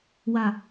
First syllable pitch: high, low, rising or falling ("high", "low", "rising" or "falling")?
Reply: falling